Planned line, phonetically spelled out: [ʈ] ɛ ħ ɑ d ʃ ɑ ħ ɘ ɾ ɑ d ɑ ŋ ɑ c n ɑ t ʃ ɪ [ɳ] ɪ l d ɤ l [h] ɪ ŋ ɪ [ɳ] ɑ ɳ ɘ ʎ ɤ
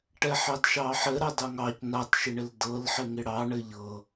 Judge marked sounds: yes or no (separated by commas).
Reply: yes, yes, no, no